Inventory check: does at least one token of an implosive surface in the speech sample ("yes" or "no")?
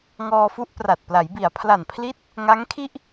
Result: no